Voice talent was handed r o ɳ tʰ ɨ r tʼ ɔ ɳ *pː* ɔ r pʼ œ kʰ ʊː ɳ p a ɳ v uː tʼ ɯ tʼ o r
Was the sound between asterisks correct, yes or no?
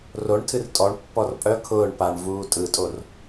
yes